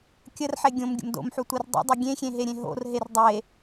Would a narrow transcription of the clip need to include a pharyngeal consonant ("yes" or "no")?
yes